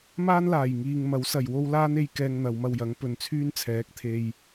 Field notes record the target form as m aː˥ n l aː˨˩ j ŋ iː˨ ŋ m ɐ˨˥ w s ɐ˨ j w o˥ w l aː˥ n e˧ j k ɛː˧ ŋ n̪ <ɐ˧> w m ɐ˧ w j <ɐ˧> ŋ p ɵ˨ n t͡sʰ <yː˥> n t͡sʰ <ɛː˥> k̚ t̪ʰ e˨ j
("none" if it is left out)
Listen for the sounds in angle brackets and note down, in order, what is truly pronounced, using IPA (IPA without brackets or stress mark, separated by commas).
ɐ˨˧, ɐ˨˥, yː˥, ɛː˨˥